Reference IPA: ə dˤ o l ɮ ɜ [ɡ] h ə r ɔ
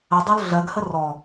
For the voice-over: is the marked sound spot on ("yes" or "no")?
yes